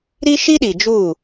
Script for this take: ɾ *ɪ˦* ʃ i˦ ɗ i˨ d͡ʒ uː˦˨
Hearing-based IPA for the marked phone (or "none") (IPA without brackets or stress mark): i˦